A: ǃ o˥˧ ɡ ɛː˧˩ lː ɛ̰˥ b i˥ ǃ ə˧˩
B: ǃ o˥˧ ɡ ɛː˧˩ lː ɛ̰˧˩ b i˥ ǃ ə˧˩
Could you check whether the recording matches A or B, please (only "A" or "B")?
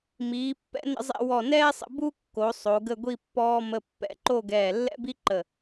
A